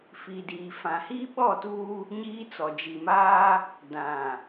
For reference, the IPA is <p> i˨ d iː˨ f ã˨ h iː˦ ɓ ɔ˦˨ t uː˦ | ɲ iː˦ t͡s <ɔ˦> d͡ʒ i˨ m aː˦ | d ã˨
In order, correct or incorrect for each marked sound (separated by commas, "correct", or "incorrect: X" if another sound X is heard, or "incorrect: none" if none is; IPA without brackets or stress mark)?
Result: incorrect: f, incorrect: ɔ˨